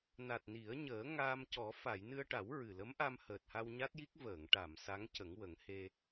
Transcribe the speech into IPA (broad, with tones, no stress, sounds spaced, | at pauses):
n a˨˩ t̚ n i˨˩˦ ə̯ ɲ əː˨˩˦ ŋ aː˧ m c ɔ˨˩˦ f a˨˩˨ j n ɨ˧ ə̯ ʈ a˨˩˦ w ɹ ɨ˨˩ l ə˧˥ m ʔ a˧ m h əː˨˩ t̚ h a˧ w ɲ a˦˥ t̚ j i˦˥ k̚ v əː˨˩˨ ŋ ʈ a˨˩˨ m s a˧˥ ŋ c ə˨˩˦ ŋ w ə˨˩˦ ŋ h e˧